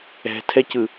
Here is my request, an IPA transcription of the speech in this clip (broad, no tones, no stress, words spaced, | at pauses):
ɛ̤tʰɛcɯ